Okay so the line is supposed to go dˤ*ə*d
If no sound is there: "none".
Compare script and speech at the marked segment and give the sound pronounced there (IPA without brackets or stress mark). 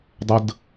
ə